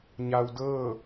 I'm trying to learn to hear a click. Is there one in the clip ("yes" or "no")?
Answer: no